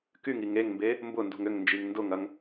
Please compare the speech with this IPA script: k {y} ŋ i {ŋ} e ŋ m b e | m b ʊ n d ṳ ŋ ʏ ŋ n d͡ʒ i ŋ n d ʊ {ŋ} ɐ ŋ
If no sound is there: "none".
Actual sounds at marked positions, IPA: y, ŋ, ŋ

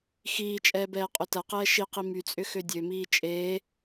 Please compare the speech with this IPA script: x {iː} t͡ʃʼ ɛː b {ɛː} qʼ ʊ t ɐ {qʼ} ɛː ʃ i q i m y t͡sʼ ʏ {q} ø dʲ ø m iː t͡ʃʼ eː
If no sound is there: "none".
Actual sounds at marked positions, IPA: iː, ɛː, q, x

